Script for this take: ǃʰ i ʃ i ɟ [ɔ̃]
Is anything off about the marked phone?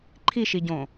yes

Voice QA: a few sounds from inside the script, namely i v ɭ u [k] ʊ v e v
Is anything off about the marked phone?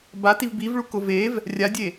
no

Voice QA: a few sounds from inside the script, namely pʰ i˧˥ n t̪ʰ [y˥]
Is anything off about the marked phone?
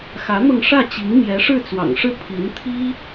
yes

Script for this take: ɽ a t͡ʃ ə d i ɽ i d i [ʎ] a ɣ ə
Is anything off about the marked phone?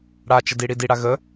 yes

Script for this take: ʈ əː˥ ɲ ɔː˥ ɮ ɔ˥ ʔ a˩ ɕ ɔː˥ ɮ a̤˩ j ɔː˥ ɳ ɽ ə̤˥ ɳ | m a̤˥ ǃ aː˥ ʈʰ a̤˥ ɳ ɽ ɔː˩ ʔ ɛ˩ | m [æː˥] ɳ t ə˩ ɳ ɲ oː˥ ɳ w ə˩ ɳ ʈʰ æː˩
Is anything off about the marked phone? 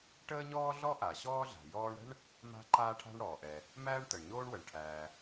no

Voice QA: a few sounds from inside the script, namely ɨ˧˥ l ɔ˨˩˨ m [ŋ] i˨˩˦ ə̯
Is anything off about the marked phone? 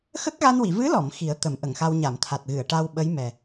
yes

